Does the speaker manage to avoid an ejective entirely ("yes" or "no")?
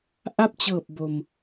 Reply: yes